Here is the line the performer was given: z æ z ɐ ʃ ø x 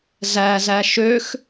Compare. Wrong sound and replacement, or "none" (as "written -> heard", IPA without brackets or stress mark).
ɐ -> æ